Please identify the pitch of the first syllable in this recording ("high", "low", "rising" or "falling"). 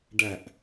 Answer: low